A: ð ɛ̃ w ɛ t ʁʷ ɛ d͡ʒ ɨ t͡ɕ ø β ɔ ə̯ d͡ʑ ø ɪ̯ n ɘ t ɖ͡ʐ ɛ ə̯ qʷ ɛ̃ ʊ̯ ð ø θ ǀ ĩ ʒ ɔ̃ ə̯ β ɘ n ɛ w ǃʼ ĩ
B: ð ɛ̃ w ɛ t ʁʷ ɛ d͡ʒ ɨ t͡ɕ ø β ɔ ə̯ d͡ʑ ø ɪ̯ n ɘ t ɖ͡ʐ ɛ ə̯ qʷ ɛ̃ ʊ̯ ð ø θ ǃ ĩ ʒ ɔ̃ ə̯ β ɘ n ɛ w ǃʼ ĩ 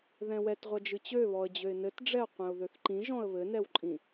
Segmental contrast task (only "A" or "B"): B